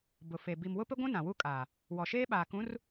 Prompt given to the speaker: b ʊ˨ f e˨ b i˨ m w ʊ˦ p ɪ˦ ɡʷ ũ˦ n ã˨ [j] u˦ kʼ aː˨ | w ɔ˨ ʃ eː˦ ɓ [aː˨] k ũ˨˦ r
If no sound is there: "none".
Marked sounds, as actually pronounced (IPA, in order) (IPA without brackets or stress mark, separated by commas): w, aː˨